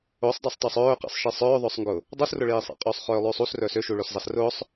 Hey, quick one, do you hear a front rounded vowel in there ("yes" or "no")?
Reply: yes